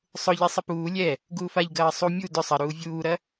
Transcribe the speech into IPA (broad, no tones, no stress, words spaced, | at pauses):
sˤʊʎe sˤɪpuː lʲɛ | ɡuːfaʎɡɐː sˤu mʲu dʏ sˤɐɾuː vʲuːɾɐ